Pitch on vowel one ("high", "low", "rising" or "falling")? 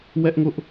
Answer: high